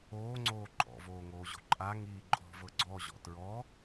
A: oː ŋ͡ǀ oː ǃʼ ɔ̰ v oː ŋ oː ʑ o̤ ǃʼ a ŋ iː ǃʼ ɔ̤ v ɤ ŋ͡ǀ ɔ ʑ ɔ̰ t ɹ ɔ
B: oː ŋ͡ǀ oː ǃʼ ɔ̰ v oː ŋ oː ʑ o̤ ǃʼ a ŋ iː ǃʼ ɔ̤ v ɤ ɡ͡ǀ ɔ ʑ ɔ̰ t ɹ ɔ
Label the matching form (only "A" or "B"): B